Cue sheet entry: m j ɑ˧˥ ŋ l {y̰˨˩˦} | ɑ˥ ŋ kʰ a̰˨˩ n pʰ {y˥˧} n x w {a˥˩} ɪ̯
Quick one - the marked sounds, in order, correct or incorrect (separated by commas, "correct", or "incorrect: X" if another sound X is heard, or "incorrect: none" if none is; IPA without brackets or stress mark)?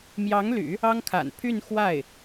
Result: correct, correct, correct